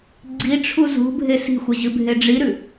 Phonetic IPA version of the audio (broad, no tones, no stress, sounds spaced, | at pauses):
ɡ͡ǀ i ʈ͡ʂʰ u z ṳ bʱ e s i̤ xʷ ɐ ʑ ɨ bʱ e ɖ͡ʐ i ɾ ʉ